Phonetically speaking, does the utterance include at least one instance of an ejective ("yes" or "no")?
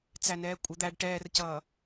yes